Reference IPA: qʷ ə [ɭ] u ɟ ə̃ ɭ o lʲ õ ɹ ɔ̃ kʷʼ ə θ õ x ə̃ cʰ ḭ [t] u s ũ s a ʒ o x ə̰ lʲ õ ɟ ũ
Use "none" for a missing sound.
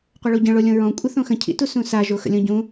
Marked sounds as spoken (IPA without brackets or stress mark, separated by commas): ɭ, t